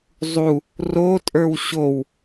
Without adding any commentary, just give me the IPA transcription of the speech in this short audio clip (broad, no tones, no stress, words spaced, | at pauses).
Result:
zˤu | rotʼə˞w ɕow